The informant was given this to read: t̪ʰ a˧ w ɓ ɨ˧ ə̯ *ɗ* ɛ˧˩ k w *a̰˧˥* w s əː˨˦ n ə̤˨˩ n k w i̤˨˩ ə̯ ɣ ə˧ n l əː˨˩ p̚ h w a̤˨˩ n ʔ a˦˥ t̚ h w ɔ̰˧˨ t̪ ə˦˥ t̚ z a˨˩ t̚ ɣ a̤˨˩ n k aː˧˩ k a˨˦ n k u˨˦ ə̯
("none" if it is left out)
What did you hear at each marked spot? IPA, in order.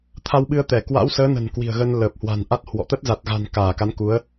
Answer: t̪, a̰˧˥

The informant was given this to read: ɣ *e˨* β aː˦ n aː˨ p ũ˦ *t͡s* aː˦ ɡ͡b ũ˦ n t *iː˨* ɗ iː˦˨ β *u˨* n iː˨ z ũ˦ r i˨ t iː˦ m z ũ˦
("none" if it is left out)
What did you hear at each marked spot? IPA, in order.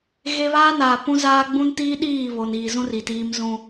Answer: e˦, z, iː˦, o˨

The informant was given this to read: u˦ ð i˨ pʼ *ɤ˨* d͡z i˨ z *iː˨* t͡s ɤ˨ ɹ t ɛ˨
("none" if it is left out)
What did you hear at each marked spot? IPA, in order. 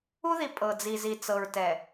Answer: ɤ˨, i˨

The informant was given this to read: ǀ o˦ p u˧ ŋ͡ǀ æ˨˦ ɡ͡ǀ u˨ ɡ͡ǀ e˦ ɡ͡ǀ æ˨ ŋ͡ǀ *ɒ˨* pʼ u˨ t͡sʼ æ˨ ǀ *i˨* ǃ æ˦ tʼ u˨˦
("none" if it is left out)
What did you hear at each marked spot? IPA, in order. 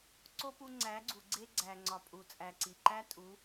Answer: ɒ˨, i˨

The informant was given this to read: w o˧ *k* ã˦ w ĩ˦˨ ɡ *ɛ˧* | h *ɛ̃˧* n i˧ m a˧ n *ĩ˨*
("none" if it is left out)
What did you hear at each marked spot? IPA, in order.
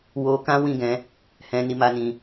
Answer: k, ɛ̃˧, ɛ̃˧, ĩ˧

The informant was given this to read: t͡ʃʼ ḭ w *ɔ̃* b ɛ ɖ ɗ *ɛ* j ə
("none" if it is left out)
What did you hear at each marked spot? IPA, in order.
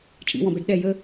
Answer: ɔ̃, ɛ

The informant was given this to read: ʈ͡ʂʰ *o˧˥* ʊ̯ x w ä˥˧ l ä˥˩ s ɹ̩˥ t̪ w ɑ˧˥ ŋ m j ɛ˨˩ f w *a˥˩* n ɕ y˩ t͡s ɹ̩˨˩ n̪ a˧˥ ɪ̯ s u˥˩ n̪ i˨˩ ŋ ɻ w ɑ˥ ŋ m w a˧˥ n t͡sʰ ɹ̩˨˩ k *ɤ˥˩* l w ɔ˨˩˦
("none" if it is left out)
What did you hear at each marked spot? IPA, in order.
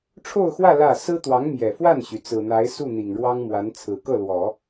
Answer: o˥˧, a˥˩, ɤ˥˩

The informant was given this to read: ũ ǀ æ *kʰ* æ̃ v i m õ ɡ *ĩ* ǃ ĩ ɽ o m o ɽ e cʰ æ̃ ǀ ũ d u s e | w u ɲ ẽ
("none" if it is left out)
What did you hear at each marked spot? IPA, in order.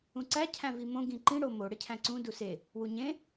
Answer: cʰ, ĩ

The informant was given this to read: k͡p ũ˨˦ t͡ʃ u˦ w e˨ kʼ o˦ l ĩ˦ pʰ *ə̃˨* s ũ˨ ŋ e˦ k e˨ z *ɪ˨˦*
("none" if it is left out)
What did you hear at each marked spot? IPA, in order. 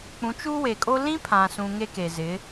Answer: ã˨, ɪ˨˦

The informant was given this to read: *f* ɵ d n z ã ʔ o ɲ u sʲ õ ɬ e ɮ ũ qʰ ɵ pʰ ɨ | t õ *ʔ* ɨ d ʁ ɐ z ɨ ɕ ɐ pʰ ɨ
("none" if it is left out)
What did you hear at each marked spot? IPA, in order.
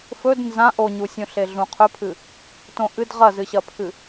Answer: f, ʔ

